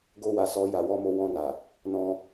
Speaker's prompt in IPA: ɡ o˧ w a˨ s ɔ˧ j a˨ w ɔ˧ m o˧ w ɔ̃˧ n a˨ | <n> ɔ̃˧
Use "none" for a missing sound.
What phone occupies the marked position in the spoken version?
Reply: n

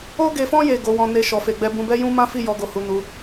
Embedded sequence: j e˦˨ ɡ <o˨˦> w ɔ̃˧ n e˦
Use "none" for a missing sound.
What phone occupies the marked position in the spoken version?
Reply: o˨˦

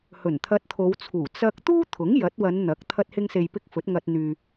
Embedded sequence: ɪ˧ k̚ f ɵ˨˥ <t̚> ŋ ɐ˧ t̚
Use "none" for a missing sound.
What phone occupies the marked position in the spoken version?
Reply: t̚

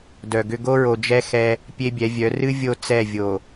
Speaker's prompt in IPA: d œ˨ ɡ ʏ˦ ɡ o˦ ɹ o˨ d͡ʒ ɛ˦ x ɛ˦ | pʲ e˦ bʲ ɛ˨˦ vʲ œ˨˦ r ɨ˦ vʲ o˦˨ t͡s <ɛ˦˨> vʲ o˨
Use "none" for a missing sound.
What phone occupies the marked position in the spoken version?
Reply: ɛ˦˨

